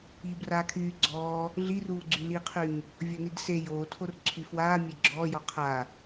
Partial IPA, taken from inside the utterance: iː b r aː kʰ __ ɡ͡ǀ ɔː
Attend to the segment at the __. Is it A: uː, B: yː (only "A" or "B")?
B